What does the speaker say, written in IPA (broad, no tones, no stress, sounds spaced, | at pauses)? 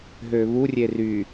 ɦ ø β u rʲ e r y